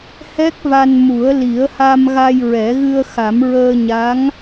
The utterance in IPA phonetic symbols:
h ɛ˦˥ k̚ v a˧ n m u˨˩˦ ə̯ l i˨˩˦ ə̯ h a˧ m ɣ a˧ j ɹ ɛ˨˩˦ ɣ ɨ˧ ə̯ x a˨˩˦ m ɹ əː˧ ɲ a˧˥ ŋ

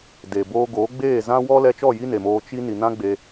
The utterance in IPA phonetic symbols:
d e˨ b oː˧ ɡ oː˨˦ ɡ͡b eː˦˨ z ã˦ w ɔ˦ l ɛ˧ t͡ʃ ɔ˦˨ j i˦ n e˨ m oː˧ t͡ʃ i˦ n i˨ n ã˦ ɡ͡b e˧

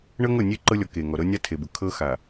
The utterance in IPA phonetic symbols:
ɳ ɤ˦ ŋ ɤ˦˨ nʲ e˦ ǃ ɤ˦ lʲ ɔ˨ k e˨ ŋ ɔ˨ ɾ ɤ˦ nʲ a˦ tʰ e˨ b ʊ˨ kʰ ɤ˦ x a˨

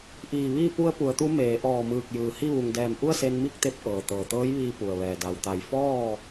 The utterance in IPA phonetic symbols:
ʔ iː˧˩ ʋ iː˥˨ p u˧ ə̯ p u˩˧ ə̯ t̪ u˧˥ m eː˩˧ ʔ ɔː˧˩ m ɯː˧˩ k̚ j ɯː˩ h i˥˨ ʋ u˩ ŋ d ɛː˧˩ m ʔ u˥˨ ə̯ s e˧ n m i˥˨ k̚ t̪ e˧ p̚ ʔ ɤː˩ t̪ ɤː˩ t̪ ɤː˧˥ j ʋ iː˧ p u˩ ə̯ ʋ ɛː˩ d a˩ w t̪ a˧˩ j f ɔː˥˨

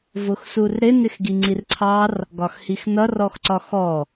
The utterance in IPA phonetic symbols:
v ʊ x s u r ɾ ɪ n ɪ x ɡ i ŋ͡ǀ i r ǀʰ ɑ r | ɡ ɒ x h i x n ʌ r ɔ x ǀ ɒ x ɔ

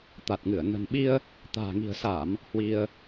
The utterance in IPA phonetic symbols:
t̪ a˨˩ t̚ ŋ ɨ˧˩ ə̯ n ə̤˨˩ n ɓ i˧ ə̯ | t̪ a̤ː˨˩ ŋ i̤˨˩ ə̯ s a˧˩˨ m | h w i˧ ə̯

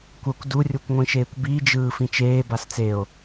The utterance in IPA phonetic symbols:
kʷ ʌ kʷ d u rʲ u kʷ ŋʷ ĩ ʃ eː kʷ b i d͡ʒ ɯː f ĩ t͡ʃ eː b a s t͡s e o̯

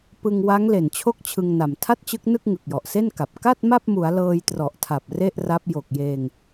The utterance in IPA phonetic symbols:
p ɯ˧ ŋ w a˦˥ ŋ l e˨˩ n t͡ɕʰ o˥˩ k̚ t͡ɕʰ ɯ˧ ŋ n a˨˩ m tʰ a˥˩ t̚ t͡ɕ ɯ˦˥ k̚ n ɯ˥˩ k̚ ŋ ɯ˨˩ k̚ j ɔ˨˩ ʔ s e˥˩ n k a˨˩ p̚ k a˥˩ t̚ m a˥˩ p̚ m u˩˦ a̯ l ɤː˧ j t r ɔ˨˩ ʔ tʰ a˨˩ p̚ r e˥˩ ʔ r a˦˥ p̚ j o˨˩ k̚ j eː˧ ŋ

